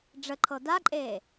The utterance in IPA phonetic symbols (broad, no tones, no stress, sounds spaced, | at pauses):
ɖ͡ʐ ə ǃʰ ɤ d a ǃʼ eː